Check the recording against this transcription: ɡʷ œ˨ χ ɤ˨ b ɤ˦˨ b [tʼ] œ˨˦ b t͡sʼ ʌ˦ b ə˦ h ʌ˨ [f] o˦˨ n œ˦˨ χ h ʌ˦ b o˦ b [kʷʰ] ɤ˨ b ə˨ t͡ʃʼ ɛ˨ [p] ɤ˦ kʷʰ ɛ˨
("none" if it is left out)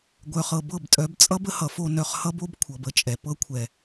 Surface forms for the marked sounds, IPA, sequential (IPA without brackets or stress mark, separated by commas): tʼ, f, kʷʰ, p